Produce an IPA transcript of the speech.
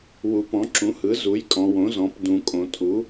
wu˩˧pɔ̃˩˥ǁũ˩˥hɯ˩˥ zu˩˥jkʼɔ̃˩˧ wõ˩˥zɔ̃˩˧p dũ˩˧kʼõ˩˧tʼu˩˥

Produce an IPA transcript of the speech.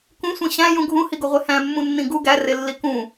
kũsʷĩ ɕæ̃jũ ɡʱũhiɡoʁʷe hæ̃mːũnːĩ ɡu ɡærelːi kũ

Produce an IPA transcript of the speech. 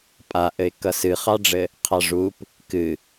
pʼaʔɘɪ̯kʌ sɨχɑɖ͡ʐɘ | qʰɑʐup | kɨ

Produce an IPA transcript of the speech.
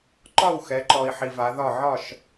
ǃɒ˥˨wxɛ˨˦ ǃɔ˨i̯ħi˨ va˨˦ðɒ˥˨ ʕɒ˥˨ʃ

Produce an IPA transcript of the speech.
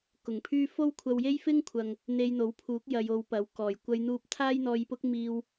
kʊ˨˩ŋpʰyː˥ fo˥wkʷʰɐ˧w je˥jfɪ˥ŋkʷʰɐ˨ŋ | n̪e˧jn̪o˨˥wpʰuː˨˥k̚ jɐ˧jo˧wpɐ˨˥wkɔː˨˩j kʷɐ˧jn̪uː˧p̚ t̪ʰaː˥jn̪ɔː˧jpʊ˥k̚ miː˧w

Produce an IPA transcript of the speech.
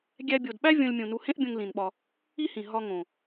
ɡʲæ˧bʲo˨dɓæ˦ vʲõ˦lʲmʲũ˧ nu˧hẽ˦ʔbʲõ˧ŋ lĩ˨nɓɒ˧ | i˦hĩ˨ ɦɒ˧ ŋõ˨

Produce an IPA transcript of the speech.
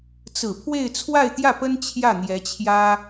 t͡sɹ̩˨˩pʰwe˥˧ɪ̯ t͡sʰwa˥˧ɪ̯t̪jä˥˩pə˥n t͡ɕʰjä˥˩n̪jɛ˧˥t͡ɕʰjä˥

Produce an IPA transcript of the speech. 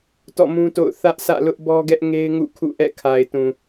tɔ̰˦˨mũ˦to̰˦˨ʊ̯ θä˦ʔsä̰˦˨lʊ˦ʔ bɔ˦ɡɛ˦ʔŋe˦ɪ̯ŋṵ˦˨ kʰṵ˦˨ʔɛ̰˦˨ kʰa˨ɪ̯tũ˨

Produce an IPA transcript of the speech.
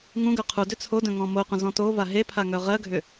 ŋũɡœ qʰu dʏt͡sʰodœ̃ ŋɔ̃moqʷə̃ zɔ̃tova ɦepʰa ŋœʁɜɡʱʏ

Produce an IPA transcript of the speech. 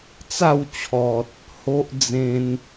t͡sa˥˧wt͡ɕʰɔ˨t̚ | ho˦ʔ d͡zẽ˧n

